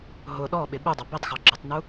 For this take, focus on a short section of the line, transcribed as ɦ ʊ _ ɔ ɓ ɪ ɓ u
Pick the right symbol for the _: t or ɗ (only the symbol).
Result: ɗ